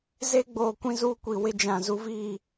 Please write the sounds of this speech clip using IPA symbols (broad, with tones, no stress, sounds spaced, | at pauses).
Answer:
z e˦ ɡ͡b oː˨ kʷ ĩ˦ z uː˦ kʷ i˨ w ɪ˦ d͡ʒ ã˨ z u˦ v iː˦˨